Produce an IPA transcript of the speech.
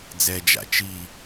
d͡z ɛ d͡ʒ a̰ t͡ʃ i

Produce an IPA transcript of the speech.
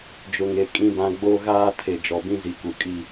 d͡ʒ ʊ˨ ŋ e˨ kʼ ĩ˨ b ã˨ ɡ͡b o˦ ɣ aː˦ tʰ e˨ d͡ʒ ɔ˨ b ĩ˦ z i˨ k u˨ kʼ i˦

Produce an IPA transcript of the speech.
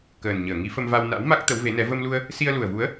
k əː˨˩ n ɲ əː˧˩ ŋ i˨˦ f ə˧ m v a˧ w n a̰˧˥ w m a˦˥ k̚ t̪ ə˨˦ w v e˨˦ n ɛ˨˦ v ə˧ m l u˧ ə̯ | s i˧ ə̯ l u˨˩ ə̯ v u˨˦ ə̯

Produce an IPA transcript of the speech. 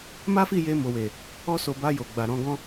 m a˦ f i˦˨ j e˧ m o˨ w e˨ | ɔ˦ s o˧ b a˧ j o˨ ɡ͡b a˨ ɾ ɔ̃˨˦ ɡ ɔ̃˦

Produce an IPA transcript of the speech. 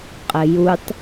qʼ ɘ j u tˤ

